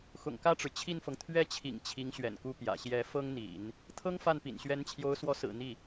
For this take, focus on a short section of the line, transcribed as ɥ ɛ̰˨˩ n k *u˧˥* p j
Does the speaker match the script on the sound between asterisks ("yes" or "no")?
no